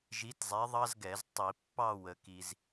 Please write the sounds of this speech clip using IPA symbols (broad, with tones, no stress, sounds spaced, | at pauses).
ʒ i˨˥ t zˤ ɛ˨˥ ðˤ ɑ˥ z ɡ ɛ˧˩˧ z tˤ i˧˩˧ pː ɑ˥˧ w ə˩ k i˩ z